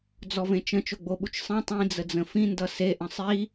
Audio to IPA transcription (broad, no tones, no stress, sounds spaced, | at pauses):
d͡z ɔ v ẽ t͡ʃ ə̃ t͡ʃ o ɡ͡b o ɓ u t͡ʃ sˤ ẽ tˤ ĩ d͡z ə d͡z ə̃ f ĩ n d ʌ s e ʔ ə̃ sˤ i